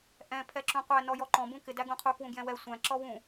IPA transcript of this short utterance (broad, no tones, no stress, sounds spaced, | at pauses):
ʔ ɛ̃ pʰ ɛ ǁ ũ qʷ æ n ɔ j ɔ ǃ ɔ̃ b ũ k ɪ d æ ɡ ũ qʰ u k w ũ ɡ j ɛ̃ w ɛ sʷ æ̃ ǁ ɔ w ũ